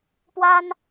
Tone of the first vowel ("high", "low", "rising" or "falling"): high